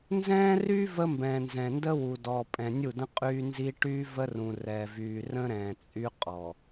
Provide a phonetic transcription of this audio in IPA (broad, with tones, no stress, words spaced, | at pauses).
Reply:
nzɛ̃ː˦ry˦ və˦mbɛ̃ː˨ nzɛ̃˨ndə˦wu˨ dɔ˨pʼɛ̃˨nʲu˦˨də̃˦ qʼyː˦nzi˦ ʈy˦və˦rũ˨ rɛ˨vyː˨rə̃˦ɾɛ̃ː˨ t͡sʼy˦qʼɔ˨